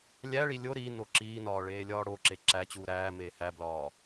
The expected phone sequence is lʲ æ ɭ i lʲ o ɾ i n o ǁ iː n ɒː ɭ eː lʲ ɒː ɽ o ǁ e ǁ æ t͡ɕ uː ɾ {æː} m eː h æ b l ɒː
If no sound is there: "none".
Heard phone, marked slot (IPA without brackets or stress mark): æː